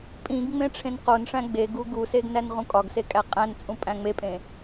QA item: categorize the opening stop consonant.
ejective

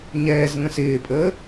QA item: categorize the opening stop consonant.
ejective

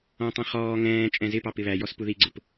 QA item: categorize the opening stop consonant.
plain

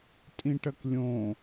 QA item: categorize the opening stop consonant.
ejective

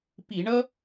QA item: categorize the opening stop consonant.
plain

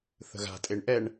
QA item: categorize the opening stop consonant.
ejective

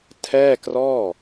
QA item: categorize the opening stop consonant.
aspirated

